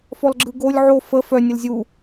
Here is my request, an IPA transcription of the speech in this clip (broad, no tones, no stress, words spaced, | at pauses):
fɔlɡ͡ǁɯɡolʲ ʕo fə fœ nʲəlzʲu